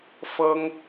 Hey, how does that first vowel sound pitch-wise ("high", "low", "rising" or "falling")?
high